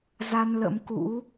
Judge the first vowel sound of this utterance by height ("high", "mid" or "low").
low